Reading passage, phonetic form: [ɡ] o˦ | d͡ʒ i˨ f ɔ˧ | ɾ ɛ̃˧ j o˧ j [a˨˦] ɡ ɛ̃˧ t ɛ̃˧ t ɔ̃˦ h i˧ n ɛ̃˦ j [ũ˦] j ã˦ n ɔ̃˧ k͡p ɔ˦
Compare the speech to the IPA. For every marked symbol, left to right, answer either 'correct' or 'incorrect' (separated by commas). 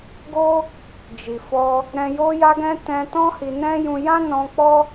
correct, incorrect, incorrect